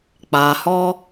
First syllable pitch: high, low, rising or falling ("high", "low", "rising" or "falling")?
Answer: low